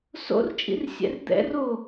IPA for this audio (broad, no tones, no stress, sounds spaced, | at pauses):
s o̰ r t͡ʃʼ ḭ r sʲ ɛ̰ r d̪ ɛ̰ r o